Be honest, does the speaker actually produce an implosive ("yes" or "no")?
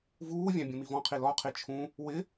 no